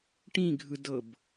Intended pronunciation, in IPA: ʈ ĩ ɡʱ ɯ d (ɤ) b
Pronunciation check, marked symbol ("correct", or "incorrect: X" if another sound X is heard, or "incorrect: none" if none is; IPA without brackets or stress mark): correct